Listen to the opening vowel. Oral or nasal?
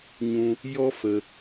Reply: nasal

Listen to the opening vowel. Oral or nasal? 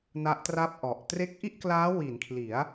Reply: oral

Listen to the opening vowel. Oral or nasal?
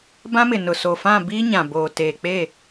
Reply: nasal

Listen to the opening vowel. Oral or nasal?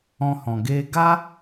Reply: nasal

